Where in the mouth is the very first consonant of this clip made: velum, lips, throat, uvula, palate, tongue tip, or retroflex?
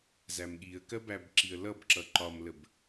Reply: tongue tip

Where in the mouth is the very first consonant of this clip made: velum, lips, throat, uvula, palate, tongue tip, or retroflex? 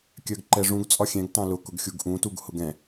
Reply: velum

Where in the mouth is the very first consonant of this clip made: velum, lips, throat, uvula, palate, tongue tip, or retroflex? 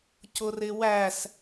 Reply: palate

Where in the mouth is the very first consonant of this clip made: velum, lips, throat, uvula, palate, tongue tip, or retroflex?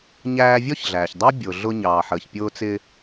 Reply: palate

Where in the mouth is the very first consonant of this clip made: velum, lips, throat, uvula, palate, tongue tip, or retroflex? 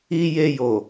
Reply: palate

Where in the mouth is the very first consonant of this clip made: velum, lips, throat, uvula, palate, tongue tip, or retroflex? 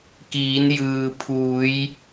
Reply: velum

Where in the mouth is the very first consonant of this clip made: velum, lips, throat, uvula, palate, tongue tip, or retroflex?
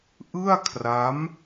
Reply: throat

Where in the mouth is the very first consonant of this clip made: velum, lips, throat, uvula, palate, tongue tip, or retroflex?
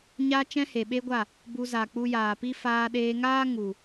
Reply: palate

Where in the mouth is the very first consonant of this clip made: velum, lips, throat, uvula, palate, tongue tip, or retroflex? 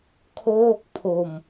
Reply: velum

